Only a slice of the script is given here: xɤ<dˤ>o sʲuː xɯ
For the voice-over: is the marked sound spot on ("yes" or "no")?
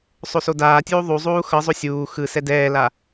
no